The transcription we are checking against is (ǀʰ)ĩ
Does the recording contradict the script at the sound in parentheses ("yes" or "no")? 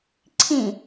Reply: no